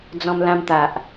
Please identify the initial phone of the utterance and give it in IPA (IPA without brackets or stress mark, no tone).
d͡z